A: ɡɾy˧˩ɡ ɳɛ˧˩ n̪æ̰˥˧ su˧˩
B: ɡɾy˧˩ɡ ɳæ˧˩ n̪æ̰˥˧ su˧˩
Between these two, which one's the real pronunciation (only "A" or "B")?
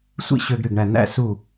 B